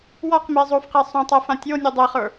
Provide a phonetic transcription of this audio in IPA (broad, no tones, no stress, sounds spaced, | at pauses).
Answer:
w ɔ q m e zˤ o f q e sˤ õ tˤ ɛ f ã tʲ o nʲ ə˞ dˤ e χ ə˞